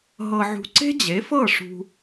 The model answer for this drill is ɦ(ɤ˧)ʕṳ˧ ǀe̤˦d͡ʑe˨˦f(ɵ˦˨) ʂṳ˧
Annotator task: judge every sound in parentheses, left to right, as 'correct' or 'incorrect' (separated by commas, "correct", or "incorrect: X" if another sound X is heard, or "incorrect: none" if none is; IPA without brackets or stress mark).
correct, incorrect: ɤ˦˨